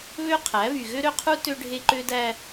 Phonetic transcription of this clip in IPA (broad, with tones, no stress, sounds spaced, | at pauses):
β ø˦ qʰ æ˨˦ β y˨ ɣ ø˦ ɾ ø˦ qʰ u˦ t ø˦ ɖʱ e˦ ǃ ø˦ d æ˦